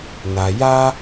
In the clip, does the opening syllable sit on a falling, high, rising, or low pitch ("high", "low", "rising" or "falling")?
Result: low